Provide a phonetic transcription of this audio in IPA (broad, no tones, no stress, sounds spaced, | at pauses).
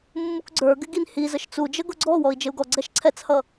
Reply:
mː u k ɡ͡ǀ ə˞ ɡ ɪ ɡ i n h i z ə ʃ t͡s u d͡ʒ ə ɡ ʊ ɡ͡ǀ ɔ w ɔ i̯ d͡ʒ ɪ u̯ ɡ ɔ ɡ͡ǀ ɛ ʃ ǀʰ ɛ t͡s h ʌ